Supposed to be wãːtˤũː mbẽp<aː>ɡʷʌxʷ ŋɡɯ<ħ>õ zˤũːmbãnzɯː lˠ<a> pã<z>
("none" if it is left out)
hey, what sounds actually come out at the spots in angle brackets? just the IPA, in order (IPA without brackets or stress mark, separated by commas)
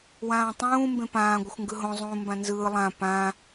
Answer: ãː, ɦ, ã, none